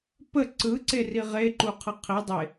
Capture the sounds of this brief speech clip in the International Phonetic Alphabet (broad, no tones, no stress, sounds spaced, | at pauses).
p ə ǀ ɯ ǀ e r i ʁ e ǃ u qʰ ɯ qʰ i dˤ e